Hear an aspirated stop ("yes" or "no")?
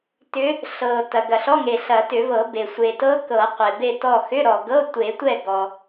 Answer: no